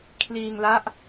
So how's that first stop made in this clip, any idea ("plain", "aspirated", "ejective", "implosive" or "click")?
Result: aspirated